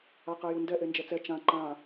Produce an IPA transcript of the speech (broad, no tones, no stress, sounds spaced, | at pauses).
a q ɛ j u n d ɛ ʔ e n d͡ʒ ɛ t͡s ɛ t͡ʃ ã ǃ ã